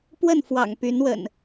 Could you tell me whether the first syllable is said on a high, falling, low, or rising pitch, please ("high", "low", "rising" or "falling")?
falling